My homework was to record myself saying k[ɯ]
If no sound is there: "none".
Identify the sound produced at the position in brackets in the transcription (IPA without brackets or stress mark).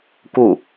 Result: u